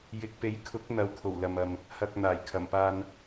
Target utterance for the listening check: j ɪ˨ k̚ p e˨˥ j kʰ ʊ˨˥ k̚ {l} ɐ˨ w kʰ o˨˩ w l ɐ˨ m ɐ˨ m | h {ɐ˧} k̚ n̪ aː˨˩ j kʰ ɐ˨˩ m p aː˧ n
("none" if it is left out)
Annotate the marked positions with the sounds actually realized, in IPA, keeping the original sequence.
n̪, ɐ˧

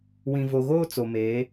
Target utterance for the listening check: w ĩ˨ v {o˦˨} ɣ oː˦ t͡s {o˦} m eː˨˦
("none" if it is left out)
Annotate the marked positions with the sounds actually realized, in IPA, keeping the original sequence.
o˨, o˨

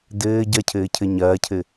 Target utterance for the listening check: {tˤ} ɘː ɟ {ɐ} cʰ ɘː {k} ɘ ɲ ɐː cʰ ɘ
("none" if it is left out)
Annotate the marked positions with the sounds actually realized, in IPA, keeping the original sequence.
d, ɐ, cʰ

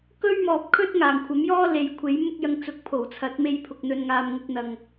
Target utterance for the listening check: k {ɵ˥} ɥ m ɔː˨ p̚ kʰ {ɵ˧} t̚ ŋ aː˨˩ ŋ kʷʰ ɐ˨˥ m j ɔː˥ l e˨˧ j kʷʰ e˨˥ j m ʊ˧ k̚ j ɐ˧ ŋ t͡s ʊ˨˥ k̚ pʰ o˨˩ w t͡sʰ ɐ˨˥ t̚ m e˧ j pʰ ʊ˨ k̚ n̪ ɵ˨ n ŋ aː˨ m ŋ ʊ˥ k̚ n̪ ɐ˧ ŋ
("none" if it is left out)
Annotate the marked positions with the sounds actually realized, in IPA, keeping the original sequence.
ɵ˥, ɵ˥

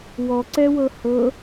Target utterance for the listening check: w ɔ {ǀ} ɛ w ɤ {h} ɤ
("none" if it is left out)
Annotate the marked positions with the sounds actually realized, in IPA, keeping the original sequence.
ǀ, h

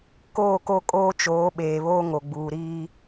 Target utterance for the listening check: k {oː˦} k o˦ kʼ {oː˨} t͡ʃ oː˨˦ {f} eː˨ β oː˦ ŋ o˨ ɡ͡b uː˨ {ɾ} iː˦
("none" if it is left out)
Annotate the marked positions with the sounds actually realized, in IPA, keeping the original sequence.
oː˦˨, oː˦, ɓ, ɾ

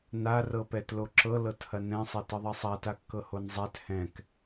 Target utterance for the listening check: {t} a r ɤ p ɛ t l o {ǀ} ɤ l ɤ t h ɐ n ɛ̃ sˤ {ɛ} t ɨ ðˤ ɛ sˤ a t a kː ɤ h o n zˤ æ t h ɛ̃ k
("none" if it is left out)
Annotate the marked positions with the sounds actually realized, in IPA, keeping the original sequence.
n, ǁ, ɛ

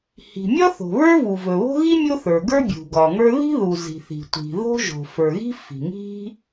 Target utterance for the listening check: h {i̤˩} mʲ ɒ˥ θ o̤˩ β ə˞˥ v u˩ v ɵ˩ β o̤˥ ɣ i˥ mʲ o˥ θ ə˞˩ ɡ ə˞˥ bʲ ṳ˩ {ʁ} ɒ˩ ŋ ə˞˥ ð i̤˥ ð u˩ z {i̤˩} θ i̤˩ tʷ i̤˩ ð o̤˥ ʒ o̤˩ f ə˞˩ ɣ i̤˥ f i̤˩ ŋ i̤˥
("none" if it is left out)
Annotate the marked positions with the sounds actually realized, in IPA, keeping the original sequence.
i̤˩, ɡ, i̤˩

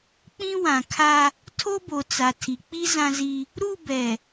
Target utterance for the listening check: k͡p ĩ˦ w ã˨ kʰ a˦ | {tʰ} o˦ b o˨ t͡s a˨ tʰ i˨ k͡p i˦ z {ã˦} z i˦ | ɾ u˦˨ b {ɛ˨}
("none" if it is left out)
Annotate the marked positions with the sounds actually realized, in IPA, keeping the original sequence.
tʰ, ã˦, ɛ˨

